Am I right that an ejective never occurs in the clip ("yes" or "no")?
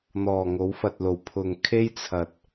yes